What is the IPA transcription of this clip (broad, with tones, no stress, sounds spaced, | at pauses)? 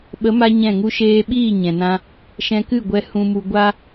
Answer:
ɓ ə˨˦ m a˧ ɲ ɛ̃˦˨ ŋ u˧ ʃ eː˧ ɓ iː˦˨ ɲ ɛ̃˨ n ã˧ | ʃ ɛ̃˧ k ɨ˦˨ ɡʷ ɛ˧ h ũ˧ m u˧ ɡʷ a˦